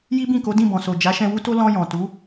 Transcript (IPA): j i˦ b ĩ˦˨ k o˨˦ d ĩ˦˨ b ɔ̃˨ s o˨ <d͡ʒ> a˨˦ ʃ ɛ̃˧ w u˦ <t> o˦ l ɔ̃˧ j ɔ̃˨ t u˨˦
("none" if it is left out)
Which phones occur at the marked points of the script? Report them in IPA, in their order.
d͡ʒ, t

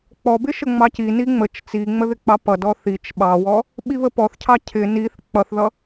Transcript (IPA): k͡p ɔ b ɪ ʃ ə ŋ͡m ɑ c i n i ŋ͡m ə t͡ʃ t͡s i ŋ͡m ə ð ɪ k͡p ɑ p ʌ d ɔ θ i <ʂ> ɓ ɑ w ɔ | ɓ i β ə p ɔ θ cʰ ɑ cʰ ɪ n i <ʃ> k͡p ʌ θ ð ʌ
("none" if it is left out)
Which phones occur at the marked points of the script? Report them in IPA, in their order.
t͡ʃ, θ

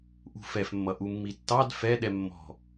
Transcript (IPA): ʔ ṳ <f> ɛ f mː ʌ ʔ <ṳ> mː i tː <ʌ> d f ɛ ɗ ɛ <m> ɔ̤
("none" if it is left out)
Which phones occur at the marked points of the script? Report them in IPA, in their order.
f, u, ɑ, mː

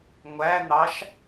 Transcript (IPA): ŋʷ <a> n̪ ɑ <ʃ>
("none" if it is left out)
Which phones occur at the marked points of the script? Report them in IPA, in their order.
æ, ʃ

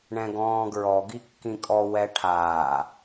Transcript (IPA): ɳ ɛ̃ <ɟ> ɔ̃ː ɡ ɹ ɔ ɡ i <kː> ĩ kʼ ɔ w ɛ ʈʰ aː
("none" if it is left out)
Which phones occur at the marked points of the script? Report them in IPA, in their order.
ɡ, kː

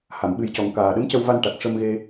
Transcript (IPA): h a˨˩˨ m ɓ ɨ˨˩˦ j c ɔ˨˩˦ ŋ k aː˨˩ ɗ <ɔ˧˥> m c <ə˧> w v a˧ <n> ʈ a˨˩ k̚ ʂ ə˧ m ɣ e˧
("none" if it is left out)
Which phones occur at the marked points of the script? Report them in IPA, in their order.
ə˧˥, ə˧, n

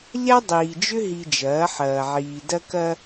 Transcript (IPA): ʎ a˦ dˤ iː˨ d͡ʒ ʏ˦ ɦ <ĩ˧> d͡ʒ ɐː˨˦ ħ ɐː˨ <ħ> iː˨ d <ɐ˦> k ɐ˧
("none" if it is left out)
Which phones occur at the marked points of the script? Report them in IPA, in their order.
i˧, ʕ, ɐ˧

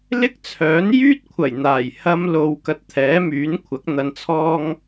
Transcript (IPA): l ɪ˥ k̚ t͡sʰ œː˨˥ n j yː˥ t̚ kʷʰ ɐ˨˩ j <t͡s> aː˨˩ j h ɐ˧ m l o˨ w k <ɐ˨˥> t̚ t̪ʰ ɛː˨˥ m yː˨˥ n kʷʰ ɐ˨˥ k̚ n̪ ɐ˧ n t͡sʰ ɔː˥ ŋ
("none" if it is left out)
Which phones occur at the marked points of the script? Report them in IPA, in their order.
n̪, ɐ˨

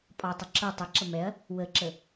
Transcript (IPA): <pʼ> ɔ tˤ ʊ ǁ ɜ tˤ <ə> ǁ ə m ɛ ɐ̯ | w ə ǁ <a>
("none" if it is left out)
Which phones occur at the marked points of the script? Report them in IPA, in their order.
pʼ, ə, ə

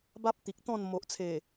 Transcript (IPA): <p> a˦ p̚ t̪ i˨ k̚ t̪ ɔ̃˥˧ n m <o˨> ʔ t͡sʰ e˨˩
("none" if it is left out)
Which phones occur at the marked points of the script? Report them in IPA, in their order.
b, o˨

